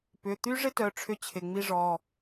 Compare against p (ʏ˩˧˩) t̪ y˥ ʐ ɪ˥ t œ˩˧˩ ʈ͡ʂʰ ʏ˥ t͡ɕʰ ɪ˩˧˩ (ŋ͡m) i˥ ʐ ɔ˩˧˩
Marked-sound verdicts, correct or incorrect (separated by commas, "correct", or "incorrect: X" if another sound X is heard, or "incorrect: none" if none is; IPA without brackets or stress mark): correct, correct